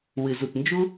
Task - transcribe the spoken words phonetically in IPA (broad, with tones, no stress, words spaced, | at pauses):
wɨ˩zu˩tnd͡ʒu˥